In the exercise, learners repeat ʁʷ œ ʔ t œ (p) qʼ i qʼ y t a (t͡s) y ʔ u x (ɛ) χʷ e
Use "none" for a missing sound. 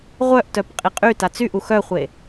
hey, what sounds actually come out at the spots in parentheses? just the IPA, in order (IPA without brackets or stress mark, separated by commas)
p, t͡s, œ